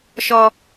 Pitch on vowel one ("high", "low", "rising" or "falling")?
high